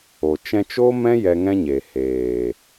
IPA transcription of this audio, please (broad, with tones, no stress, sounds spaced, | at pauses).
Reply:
o˧ t͡ʃ ɛ̃˧ t͡ʃ o˦ m ɛ̃˦ j ɛ˧ ŋ ɛ̃˦ ɲ eː˨ h eː˨